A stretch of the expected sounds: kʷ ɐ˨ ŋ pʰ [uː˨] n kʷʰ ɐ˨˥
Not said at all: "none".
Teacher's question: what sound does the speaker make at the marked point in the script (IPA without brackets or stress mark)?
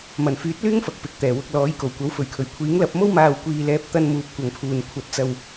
uː˨